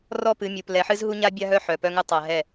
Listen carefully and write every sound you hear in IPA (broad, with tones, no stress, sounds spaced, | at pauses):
r ɔ˦ p ɨ˨˦ mʲ u˨ p l ɛ˨ ħ ɨ˦ z ɦ u˦ ɲ a˦ bʲ a˦ ɦ œ˦ ħ œ˨ p œ˦ ŋ ɨ˦ tˤ a˨ ɦ ɛ˦˨